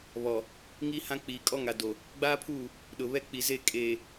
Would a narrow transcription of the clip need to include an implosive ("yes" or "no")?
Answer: yes